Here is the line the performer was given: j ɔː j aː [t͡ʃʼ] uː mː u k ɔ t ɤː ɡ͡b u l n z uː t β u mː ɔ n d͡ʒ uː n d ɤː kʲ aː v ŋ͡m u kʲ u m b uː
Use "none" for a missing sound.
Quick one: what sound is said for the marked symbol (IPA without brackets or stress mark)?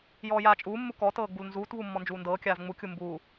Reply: t͡ʃʼ